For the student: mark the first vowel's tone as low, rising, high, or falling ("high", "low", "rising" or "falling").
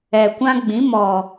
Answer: low